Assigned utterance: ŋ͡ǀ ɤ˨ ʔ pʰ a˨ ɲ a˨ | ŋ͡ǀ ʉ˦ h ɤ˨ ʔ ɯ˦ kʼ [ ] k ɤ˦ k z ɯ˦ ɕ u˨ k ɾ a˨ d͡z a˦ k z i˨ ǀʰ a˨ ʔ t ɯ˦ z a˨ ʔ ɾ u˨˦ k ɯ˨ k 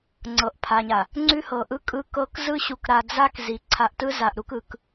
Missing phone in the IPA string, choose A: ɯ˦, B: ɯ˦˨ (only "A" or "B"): A